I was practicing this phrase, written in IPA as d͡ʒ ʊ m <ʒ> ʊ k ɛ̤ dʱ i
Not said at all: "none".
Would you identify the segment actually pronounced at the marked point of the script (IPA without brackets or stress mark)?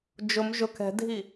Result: ʒ